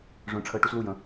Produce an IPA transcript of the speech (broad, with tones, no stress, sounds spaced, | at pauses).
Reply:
ʐ œ̃˧ ʈ͡ʂʰ əː˧ ʈ u˧ s l u˧˩ j ə̃˩˧